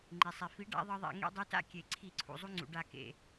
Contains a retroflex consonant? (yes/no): yes